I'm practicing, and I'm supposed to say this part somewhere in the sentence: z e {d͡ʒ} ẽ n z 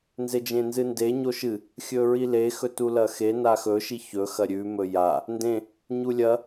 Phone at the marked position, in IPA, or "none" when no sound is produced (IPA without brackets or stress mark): d͡ʒ